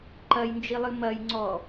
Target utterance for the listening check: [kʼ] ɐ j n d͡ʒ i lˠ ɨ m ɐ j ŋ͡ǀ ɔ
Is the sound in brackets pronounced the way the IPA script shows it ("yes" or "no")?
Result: no